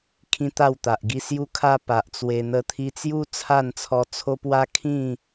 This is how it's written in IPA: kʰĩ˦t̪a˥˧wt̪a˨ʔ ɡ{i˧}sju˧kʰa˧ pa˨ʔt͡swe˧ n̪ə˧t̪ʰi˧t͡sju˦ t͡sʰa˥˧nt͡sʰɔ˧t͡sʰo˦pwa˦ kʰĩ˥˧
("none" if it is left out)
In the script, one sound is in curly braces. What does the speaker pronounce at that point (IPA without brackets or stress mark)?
i˧